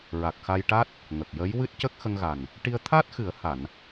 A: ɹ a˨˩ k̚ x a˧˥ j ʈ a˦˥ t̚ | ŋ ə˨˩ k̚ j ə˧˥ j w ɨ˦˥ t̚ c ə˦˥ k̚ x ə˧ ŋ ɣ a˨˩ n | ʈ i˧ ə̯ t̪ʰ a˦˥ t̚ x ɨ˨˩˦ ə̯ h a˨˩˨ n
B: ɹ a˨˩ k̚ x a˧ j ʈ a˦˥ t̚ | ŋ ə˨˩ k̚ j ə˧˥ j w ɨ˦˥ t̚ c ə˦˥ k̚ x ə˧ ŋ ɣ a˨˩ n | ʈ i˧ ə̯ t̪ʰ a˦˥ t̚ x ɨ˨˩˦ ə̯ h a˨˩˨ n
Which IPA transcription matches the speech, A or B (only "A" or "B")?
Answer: B